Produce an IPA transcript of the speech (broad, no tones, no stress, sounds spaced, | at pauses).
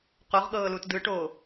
q o ʁ ɠ ɤː l u t d ɯ ʈ oː